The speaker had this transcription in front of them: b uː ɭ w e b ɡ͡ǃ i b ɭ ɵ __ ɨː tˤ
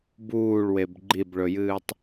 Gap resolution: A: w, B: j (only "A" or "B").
B